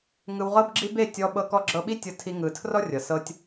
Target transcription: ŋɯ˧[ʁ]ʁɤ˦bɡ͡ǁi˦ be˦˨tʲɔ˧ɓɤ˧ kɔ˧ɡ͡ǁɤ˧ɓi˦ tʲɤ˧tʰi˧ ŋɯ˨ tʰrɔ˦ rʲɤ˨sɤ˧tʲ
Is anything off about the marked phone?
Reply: yes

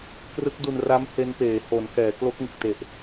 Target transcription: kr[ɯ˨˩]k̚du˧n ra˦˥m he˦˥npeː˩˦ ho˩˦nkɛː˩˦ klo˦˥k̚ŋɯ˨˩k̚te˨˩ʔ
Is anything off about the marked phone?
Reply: yes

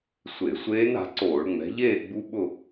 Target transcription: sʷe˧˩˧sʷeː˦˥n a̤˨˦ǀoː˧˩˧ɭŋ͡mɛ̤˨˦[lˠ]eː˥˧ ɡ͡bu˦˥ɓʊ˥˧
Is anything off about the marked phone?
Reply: yes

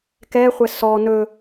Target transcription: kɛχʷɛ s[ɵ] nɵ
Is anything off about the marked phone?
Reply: yes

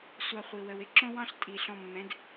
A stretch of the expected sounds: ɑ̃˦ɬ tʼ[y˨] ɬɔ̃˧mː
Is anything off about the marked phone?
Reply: yes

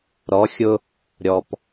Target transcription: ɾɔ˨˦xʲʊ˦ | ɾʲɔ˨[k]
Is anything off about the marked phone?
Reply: yes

